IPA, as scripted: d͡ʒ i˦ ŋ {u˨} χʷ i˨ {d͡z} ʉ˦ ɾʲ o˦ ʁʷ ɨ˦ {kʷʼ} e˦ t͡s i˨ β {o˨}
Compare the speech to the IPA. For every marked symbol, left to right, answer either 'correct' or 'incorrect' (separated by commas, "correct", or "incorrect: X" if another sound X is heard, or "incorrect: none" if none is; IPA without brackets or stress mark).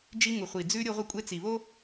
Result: correct, correct, correct, incorrect: o˦